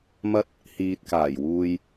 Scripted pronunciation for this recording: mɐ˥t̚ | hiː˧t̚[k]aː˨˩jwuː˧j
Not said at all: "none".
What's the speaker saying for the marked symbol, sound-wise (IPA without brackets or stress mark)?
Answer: k